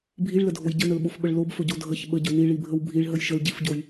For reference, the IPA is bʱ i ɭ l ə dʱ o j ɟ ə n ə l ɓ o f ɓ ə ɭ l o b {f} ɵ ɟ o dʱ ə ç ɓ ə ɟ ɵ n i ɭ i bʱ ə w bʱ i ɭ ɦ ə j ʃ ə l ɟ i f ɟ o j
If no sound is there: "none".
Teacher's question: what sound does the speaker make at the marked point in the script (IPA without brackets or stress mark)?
f